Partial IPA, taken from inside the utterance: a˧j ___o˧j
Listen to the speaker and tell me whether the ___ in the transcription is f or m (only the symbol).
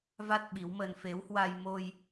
m